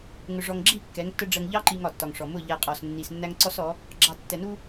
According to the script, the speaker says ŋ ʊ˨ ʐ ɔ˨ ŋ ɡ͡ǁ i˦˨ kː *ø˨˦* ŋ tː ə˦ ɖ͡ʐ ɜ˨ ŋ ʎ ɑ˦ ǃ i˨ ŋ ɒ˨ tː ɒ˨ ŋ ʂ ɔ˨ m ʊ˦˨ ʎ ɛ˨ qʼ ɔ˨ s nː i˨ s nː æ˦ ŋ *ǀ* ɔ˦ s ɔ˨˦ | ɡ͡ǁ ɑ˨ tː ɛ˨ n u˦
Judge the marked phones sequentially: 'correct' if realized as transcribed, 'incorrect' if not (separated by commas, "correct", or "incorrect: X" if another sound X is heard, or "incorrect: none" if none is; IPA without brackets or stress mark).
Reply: incorrect: ɛ˨˦, correct